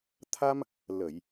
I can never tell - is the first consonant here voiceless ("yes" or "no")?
yes